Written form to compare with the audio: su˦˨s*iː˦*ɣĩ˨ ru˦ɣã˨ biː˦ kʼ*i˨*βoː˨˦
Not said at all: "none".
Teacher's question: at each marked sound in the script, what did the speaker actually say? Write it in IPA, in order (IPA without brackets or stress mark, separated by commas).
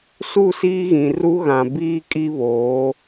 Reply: iː˦, i˦